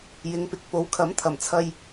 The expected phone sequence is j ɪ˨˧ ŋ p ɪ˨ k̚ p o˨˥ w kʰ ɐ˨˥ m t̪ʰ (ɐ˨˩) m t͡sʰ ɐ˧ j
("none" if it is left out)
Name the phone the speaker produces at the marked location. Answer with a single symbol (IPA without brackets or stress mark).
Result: ɐ˨˩